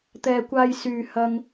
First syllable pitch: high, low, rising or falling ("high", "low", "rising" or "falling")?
low